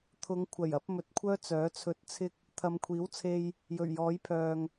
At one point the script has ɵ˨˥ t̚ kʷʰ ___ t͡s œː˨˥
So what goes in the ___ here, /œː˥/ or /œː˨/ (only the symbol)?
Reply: œː˥